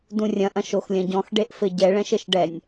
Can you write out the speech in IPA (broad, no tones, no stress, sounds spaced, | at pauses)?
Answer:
d ũ rʲ ɐ̃ ʔ ɐ̃ ʃ o x lʲ ɐ̃ ɟ ɔ̃ x ɖ e ʔ f ɘ ɟ ɛ ɭ ɛ̃ ʃ ɘ ʃ ɖ ɛ nʲ